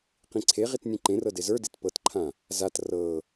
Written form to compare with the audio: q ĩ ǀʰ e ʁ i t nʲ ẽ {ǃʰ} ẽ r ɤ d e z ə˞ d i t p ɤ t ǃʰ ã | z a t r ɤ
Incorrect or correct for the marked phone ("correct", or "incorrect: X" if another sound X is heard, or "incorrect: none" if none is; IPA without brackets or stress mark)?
incorrect: ǃ